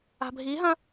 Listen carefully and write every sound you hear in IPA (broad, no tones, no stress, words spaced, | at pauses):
a̤bʱiɦɐ̃